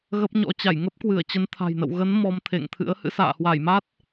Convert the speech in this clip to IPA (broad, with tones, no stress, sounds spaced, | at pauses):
ɣ ə˦˥ p̚ ɲ ɔ̰˧˥ t͡ɕ a˧˩ j ŋ ə˦˥ p̚ k w ɨ˧˩ ə̯ t͡ɕ ə˨˦ n t̪ʰ a̤˨˩ j n ə̰˧˨ w ɣ ə˨˦ n m ɔ˧ m t̪ʰ ḛ˧˨ ŋ t̪ʰ ɨ̰˧˥ ə̯ h ɨ̰˧˥ s a̰ː˧˨ h w a˧˩ j m a˦˥ t̚